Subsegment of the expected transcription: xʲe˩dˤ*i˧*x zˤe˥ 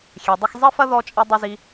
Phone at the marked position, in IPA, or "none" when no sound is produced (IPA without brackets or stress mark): ɨ˧